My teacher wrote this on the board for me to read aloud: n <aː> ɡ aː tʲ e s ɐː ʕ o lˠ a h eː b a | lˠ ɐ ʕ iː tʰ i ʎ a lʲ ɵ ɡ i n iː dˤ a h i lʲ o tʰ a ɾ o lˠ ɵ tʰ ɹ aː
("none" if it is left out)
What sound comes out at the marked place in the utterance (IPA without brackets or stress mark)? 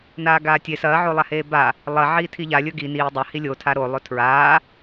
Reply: aː